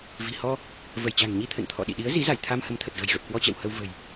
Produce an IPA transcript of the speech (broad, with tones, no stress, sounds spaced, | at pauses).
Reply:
v i̤˨˩ h ɔ˧ | v ə˧˩ j t͡ɕ a̤˨˩ ŋ ɲ i˧ t̪ʰ ə̰˧˨ n t̪ʰ ɔ̰˧˨ ɗ ḭ˧˨ ɗ i˨˦ ə̯ z i˨˦ z a˧˩ j t̪ʰ a˧ m h ə˨˦ m t̪ʰ ə˨˩ t̚ ɣ ə̤˨˩ j ɣ ə˨˩ p̚ k w ɔ˧ t͡ɕ ɛ̰˧˨ w h ə˧ w v ə̤˨˩ j